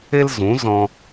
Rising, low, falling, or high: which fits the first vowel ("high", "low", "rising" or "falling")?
high